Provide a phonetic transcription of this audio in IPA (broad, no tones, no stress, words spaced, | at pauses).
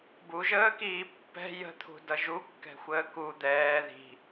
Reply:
buʒəːkiː pːɛ̤ jə̤t̪ʰṳdʌ ʒukːɛ̤xʷəː ku d̪ɛː ði̤